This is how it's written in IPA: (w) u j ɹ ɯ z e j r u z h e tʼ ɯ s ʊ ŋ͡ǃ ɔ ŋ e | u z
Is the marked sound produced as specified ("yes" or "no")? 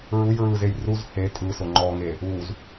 no